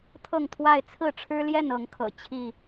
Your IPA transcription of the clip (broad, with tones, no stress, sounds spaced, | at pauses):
t̪ʰ ɤ˥˨ ŋ t̪ʰ w a˥˨ ɪ̯ t͡sʰ ɹ̩˥˨ ʈ͡ʂʰ ɻ̩˦ l j ɛ˥˨ n ɤ˨˦ ŋ kʰ ɤ̰˨˩ t͡ɕʰ i˥˨